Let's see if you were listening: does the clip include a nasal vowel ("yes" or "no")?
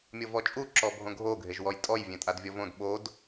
yes